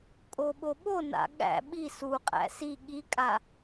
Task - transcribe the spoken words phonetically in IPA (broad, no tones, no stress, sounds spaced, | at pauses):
kʼ o ɓ o ɓ o n a̰ ɠ æ̰ ɓ i s u qʼ æ̰ s i ɠ i kʼ a